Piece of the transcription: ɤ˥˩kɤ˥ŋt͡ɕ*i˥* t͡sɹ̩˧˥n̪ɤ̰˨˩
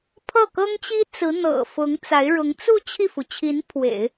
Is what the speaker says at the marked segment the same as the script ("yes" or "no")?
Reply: yes